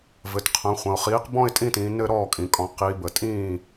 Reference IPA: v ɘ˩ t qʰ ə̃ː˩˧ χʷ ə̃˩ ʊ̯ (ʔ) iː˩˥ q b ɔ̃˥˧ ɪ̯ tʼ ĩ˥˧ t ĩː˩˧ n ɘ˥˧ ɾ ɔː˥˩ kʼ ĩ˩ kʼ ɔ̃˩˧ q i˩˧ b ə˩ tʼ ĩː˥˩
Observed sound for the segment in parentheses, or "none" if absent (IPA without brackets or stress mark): χ